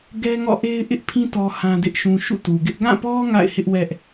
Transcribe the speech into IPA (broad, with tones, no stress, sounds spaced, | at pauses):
ɡ ɛ˦ ŋ ɔ̰˦˨ ʔ e˦ ɪ̯ ʔ ɪ˦ ʔ pʰ ĩ˦ t ɔ˦ h ã˦ d ɪ˦ ʔ ʃ ũ˦ ʃ ṵ˦˨ t u˨ ɡ ɪ˦ ʔ ɡ ã˦˨ p ɔ˦ ŋ a̰˦˨ ɪ̯ h ɪ˦ ʔ w ɛ˦ ʔ